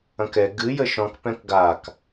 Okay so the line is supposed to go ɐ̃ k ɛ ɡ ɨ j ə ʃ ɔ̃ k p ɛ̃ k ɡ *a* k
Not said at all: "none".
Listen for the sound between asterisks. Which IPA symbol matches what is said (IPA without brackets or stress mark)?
a